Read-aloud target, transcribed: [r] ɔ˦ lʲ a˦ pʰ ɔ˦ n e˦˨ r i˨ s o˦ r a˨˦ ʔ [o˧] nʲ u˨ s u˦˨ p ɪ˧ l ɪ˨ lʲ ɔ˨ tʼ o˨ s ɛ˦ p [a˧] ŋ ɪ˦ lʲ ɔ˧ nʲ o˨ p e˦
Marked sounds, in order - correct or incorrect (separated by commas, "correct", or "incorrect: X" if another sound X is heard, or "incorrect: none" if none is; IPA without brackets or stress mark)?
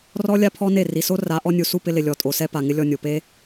correct, incorrect: ɔ˧, incorrect: a˨